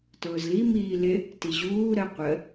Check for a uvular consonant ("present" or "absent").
present